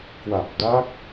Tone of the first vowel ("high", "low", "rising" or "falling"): low